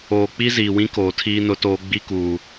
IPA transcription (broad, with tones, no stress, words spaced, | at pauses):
oː˨k͡pi˦ziː˨wĩ˦ koː˨tʰiː˦nʊ˦toː˦ ɡ͡bi˦kuː˨